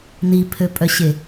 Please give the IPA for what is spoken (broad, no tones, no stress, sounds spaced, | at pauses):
n i pʰ ø pʼ œ ɕ e